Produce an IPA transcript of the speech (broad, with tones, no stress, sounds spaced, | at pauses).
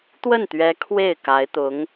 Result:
t̪ w ə˥˩ n t̪ ɥ ɛ˧˥ kʰ w e˥˩ ɪ̯ k a˧˥ ɪ̯ t̪ ʊ˧˥ ŋ